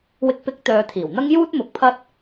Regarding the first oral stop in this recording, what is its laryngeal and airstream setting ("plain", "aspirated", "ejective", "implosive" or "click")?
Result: plain